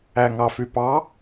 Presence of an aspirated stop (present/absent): absent